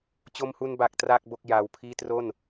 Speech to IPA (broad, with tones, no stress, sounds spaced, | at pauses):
t͡ɕ o˧ m h u˧ n b a˨˩ k̚ t r a˥˩ k̚ b o˥˩ k̚ j aː˧ w pʰ iː˥˩ t r o˥˩ n